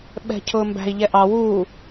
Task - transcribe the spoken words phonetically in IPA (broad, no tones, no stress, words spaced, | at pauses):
ɓɛ̤cʰʊːmbæ̤i̯ ʎɛʔɑ wuː